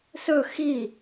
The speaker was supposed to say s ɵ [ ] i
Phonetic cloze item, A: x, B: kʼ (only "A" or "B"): A